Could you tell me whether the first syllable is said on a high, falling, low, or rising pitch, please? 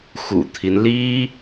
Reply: low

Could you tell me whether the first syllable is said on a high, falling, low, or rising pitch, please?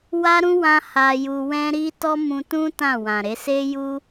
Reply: high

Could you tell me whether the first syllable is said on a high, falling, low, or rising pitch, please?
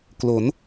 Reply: rising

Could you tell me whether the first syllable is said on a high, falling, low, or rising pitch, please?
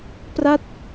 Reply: falling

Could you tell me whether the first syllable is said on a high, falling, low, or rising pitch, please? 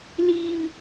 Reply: low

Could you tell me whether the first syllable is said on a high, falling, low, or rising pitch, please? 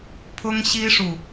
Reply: high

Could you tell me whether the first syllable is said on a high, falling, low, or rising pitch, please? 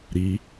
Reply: rising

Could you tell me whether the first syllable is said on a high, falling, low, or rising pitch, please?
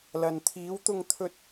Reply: low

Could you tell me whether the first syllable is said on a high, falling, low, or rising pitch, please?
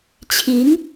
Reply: rising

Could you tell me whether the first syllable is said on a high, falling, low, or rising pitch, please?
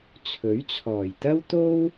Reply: rising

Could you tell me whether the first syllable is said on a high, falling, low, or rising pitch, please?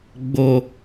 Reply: low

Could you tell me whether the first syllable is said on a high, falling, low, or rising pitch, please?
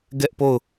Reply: high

